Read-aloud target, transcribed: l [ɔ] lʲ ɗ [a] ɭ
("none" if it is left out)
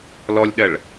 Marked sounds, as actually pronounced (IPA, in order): ɔ, ɐ

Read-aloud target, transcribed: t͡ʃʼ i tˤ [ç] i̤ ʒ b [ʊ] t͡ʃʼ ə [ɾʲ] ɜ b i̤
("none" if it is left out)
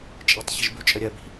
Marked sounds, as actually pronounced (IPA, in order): ç, ʉ, ɾʲ

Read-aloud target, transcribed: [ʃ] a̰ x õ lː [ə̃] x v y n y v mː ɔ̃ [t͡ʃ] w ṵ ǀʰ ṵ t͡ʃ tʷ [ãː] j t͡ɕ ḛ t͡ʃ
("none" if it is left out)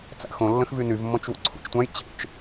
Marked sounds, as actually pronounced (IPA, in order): t͡s, ə̃, t͡ʃ, ã

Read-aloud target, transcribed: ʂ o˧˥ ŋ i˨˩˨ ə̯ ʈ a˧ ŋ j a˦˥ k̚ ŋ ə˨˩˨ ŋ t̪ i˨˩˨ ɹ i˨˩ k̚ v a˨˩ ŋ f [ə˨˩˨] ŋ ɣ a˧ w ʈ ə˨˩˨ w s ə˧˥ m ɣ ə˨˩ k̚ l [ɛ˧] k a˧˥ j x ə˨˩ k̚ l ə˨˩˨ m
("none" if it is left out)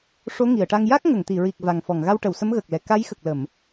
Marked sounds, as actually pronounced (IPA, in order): ɔ˨˩˨, ɛ˨˩

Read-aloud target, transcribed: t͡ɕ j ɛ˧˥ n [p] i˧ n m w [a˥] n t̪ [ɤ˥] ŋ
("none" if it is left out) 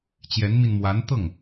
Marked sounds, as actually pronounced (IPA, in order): m, a˧˥, ɤ˥˩

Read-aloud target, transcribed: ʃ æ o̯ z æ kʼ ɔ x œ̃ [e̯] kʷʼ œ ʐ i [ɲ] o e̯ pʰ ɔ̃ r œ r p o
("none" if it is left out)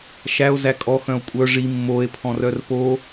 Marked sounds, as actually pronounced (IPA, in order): o̯, mː

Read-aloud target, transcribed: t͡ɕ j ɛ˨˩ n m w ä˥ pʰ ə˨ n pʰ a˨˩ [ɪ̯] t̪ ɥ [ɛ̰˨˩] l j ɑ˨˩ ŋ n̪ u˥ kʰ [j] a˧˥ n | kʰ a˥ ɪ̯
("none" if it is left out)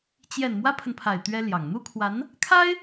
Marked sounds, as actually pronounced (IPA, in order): ɪ̯, ɛ˥, w

